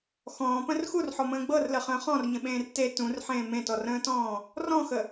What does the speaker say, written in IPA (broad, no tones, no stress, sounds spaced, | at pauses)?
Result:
x ɔ̃ː p ə̃ r x u r ħ ɔ m ə̃ː ɡ͡b ɤ r l ə χ ə̃ː χ ɔ̃ r ɲ ə̃ ɓ ẽː r t e t ũ r ħ ẽː m ẽ t ɔ r ə̃ː t ɔ̃ː | r ɔ̃ x ə